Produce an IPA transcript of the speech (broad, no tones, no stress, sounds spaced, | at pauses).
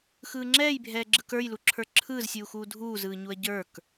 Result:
x ɯː ŋ͡ǁ ɛː j bʱ ɛː ɡ͡ǁ ɯ k ə˞ j l u ǁʰ ə˞ ǁʰ ɯː z sʲ uː x uː dʱ uː z ɯː ɲ u ɐ̯ ɟ ə˞ k